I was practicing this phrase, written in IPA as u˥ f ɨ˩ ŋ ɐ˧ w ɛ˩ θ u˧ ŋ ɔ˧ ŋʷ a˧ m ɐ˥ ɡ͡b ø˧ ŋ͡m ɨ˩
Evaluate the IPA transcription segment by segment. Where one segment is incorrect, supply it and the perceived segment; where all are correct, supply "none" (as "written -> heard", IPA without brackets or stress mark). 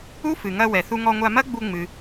ø˧ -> u˧